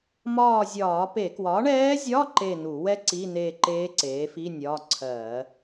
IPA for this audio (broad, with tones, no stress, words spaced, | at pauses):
mɒː˦˨zʲɒː˧˩˧pe˧˩˧ kwɒ˩˥ɳɛː˧˥zʲɒ˧˥˧ ǃe˦˨nu˧˩˧wɛ˥ ǀi˧˥˧neː˦˨ ǃeː˧˥ ǀeː˩˥fi˧˥˧ nʲɒ˧˥˧ǀʰɜ˧˩˧